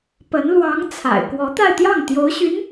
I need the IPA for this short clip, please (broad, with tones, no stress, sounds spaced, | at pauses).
p ə˧˥ n l w ɑ˧˥ ŋ t͡sʰ a̰˨˩ ɪ̯ k w ɔ˧˥ t̪ a˥˧ ɪ̯ t̪ j ɑ˥˩ ŋ t̪ j o˧˥ ʊ̯ ɕ y˧˥ n